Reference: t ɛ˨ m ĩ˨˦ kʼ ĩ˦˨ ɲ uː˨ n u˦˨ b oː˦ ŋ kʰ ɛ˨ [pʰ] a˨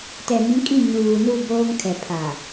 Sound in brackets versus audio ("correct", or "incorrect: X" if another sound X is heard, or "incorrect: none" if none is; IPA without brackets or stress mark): correct